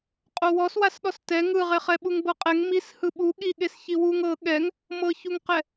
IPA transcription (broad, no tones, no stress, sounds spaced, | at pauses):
qʼ o w ɔ s w a s ɗ ɔ s t ɛ ŋ ɯ ʁ e χ ɛ ɓ u ŋ b ɤ qʼ ɛ ŋ m i s h ɯ ɓ u ɠ i ɠ e s ç i w u ŋ ɤ ɠ ɛ ŋ | m ɤ ç u ŋ q ɛ